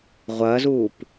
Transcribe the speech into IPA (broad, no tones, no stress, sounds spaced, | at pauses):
ʁʷ ɐː z uː p